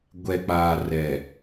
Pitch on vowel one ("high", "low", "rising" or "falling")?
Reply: low